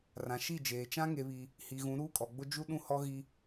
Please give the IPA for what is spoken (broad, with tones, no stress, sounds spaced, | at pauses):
r ã˨ ʃ i˦˨ d͡ʒ eː˨ t͡ʃ ã˦ ŋ e˨ β i˨ | h i˨ ɣ ũ˨˦ ɾ uː˦ kʼ ɔ˨ ɡ͡b ʊ˦ d͡ʒ u˦ ɗ ũ˦ h ɔ˦ ɣ i˦